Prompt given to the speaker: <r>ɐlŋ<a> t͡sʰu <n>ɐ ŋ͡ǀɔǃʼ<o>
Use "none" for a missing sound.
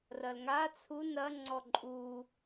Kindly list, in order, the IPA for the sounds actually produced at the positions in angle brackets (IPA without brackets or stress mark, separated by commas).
r, a, n, u